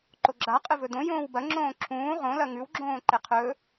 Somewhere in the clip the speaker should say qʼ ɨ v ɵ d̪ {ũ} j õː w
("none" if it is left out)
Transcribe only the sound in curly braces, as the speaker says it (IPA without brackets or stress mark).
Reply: õ